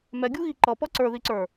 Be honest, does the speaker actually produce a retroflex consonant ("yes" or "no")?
no